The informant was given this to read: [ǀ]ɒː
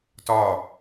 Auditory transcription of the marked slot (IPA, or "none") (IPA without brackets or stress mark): t